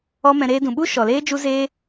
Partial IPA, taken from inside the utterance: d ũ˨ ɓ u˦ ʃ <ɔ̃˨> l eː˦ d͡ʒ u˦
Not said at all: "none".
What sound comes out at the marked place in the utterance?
ɔ˨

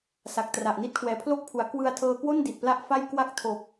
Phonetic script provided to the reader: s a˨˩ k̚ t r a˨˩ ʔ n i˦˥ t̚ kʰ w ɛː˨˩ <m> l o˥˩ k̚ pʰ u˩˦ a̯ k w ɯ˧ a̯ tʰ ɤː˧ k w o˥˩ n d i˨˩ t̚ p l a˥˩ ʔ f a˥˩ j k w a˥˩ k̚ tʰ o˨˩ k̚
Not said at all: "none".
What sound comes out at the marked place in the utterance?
pʰ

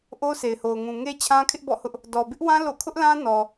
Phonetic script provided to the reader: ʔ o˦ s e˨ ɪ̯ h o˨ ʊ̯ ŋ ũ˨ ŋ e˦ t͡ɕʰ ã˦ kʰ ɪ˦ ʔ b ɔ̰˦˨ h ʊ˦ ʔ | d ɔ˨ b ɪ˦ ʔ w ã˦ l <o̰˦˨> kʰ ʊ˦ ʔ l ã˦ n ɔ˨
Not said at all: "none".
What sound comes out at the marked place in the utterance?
o̰˦˨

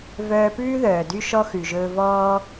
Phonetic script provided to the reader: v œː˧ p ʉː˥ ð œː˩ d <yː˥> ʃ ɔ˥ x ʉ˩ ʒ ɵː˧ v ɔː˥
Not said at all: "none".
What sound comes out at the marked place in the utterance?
y˥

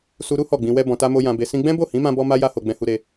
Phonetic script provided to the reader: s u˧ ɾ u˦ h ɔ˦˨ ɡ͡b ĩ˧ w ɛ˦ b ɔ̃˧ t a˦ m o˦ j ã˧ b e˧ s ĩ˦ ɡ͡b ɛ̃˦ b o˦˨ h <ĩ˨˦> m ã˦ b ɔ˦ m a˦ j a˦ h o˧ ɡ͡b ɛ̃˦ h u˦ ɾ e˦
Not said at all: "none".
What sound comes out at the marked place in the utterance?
ĩ˨˦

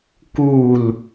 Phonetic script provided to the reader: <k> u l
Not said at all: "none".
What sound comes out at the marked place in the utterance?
k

